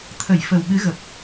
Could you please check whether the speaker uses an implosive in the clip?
yes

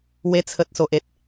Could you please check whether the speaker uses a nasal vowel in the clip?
no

